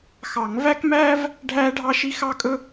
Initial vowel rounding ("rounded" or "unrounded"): unrounded